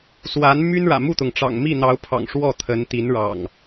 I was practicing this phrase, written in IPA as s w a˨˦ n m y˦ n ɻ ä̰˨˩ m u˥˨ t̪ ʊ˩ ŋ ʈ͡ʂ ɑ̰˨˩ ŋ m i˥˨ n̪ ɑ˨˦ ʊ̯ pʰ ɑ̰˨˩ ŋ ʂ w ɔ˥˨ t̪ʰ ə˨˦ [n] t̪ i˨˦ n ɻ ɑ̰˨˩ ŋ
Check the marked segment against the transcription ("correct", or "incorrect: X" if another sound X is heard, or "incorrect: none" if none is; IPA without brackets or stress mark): correct